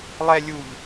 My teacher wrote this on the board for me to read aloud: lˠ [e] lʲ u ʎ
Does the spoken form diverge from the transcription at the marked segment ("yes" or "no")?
yes